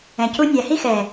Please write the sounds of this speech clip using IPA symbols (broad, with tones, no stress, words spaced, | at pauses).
ɛ̃˨cu˦ nʲæ˨hi˦xɛː˨